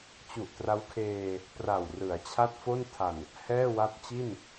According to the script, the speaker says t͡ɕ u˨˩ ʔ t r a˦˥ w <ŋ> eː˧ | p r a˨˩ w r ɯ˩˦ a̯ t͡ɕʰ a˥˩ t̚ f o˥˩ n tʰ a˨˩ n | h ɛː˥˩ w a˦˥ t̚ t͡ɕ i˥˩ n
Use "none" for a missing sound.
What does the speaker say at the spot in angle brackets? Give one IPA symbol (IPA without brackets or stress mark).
kʰ